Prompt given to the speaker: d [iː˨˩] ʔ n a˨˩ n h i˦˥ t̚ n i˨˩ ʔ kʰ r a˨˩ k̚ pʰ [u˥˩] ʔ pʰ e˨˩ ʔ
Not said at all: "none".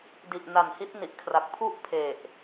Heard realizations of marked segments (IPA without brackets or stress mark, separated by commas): i˨˩, u˥˩